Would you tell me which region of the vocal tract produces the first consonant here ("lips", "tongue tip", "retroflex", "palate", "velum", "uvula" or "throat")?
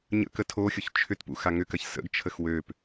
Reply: palate